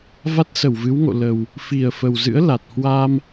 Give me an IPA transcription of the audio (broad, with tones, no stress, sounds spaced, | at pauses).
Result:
v a˦˥ t̚ s ə˧˩ w v ɨ˨˦ w ŋ o̰˧˨ l ə˨˩ w | f i˨˩ ə̯ f ə˨˩ w z ɨ̰˧˥ ə̯ l a˨˩ t̚ h w a˧ m